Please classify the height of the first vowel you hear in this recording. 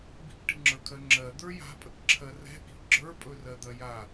high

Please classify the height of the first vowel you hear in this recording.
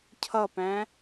mid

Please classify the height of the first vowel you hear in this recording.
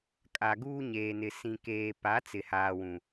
low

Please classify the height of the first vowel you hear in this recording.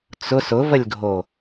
high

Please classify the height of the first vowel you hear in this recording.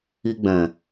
high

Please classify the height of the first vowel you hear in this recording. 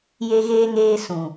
mid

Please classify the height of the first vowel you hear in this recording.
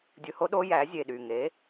high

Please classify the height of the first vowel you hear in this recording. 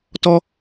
mid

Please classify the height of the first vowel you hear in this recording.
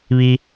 high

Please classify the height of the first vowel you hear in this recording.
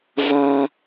low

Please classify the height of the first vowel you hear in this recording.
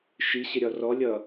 high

